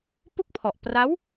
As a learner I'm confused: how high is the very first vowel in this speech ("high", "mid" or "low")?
high